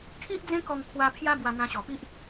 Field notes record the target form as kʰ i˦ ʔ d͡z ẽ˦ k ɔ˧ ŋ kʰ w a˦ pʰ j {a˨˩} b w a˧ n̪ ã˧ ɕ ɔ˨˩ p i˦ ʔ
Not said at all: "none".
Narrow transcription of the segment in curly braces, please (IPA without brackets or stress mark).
a˦